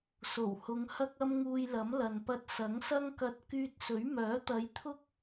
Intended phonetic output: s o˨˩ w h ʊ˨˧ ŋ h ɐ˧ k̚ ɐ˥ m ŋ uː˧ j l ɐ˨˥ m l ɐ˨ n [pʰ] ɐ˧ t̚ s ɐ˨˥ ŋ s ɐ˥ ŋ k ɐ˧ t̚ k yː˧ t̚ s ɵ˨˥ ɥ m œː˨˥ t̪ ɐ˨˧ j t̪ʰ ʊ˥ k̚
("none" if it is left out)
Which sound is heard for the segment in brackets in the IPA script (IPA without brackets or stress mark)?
p